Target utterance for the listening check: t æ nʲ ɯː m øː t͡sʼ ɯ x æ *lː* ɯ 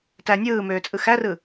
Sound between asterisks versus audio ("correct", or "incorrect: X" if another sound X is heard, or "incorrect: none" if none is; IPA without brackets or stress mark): incorrect: r